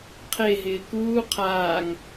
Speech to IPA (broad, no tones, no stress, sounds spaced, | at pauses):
qʰ e ɦ ɪː k uː qʰ aː ŋ